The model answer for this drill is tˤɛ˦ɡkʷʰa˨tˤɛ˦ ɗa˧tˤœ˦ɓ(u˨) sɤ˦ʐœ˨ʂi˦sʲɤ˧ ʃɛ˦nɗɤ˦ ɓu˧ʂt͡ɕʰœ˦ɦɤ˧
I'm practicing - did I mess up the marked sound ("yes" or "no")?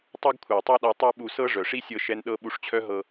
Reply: yes